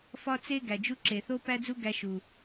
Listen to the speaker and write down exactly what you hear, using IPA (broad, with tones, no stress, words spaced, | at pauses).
fɒ˦t͡se˦ ɡæ˨d͡ʒu˦ ǁe˨θo˦pæ˦d͡zu˦ ɡæ˦ʃu˨